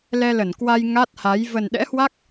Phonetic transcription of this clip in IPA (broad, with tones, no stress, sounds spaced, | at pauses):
l ɛ˧ l ə˧˩ n k w a˧ j ŋ a˦˥ t̚ h a˨˦ j v ə˨˩ n ɗ ɛ̰˧˥ h w a˦˥ k̚